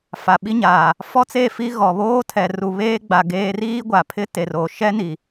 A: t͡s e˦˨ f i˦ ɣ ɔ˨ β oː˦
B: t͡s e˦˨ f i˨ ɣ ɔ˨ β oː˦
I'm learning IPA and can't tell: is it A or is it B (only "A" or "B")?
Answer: A